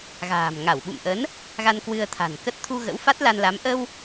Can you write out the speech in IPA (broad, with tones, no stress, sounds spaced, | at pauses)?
ɣ a̤ː˨˩ m ŋ a˧˩ w ɓ ṵ˧˨ m ʔ ə˨˦ n | ɣ a˧ n k w ɨ˧ ə̯ t̪ʰ a̤˨˩ n k ə˦˥ t̚ t̪ʰ u˧ ɣ ə̰˧˥ w f a˦˥ t̚ l a˧ n l a˨˦ m ʔ ə˧ w